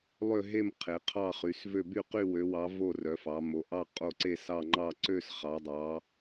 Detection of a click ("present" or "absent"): present